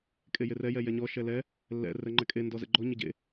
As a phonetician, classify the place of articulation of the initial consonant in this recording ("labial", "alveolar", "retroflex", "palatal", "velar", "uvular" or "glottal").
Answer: velar